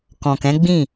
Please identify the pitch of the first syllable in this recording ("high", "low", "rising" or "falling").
low